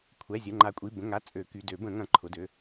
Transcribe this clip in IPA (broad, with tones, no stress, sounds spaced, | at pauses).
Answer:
kʷʰ ɛ˩˧˩ zʲ ə˩˧˩ ŋ͡ǃ a˨˩˦ kʷʼ i˩˧˩ b ə̃˩˧˩ ŋ a˩˧˩ t͡sʼ ø˨˩˦ k y˩˧˩ d ø˨˩˦ b ə̃˨˩˦ ŋ ɐ̃˨˩˦ ǃʰ ʊ˩˧˩ d ø˩˧˩